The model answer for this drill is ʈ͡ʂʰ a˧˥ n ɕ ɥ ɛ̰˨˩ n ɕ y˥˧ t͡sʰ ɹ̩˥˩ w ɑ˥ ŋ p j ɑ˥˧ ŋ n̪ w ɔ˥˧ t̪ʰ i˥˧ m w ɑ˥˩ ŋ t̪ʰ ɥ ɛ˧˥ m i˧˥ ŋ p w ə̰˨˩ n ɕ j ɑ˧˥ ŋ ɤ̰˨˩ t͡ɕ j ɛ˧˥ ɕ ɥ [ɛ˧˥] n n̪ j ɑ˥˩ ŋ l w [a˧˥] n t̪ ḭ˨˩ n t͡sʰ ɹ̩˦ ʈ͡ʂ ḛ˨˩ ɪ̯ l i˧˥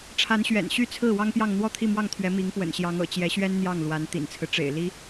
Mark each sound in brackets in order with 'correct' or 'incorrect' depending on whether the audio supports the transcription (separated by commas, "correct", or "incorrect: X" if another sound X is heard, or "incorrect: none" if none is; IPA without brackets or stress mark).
incorrect: ɛ˥, correct